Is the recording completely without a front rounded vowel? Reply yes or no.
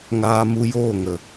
yes